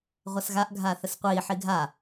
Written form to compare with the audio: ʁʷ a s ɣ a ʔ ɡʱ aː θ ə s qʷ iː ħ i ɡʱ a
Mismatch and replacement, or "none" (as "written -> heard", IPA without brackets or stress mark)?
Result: none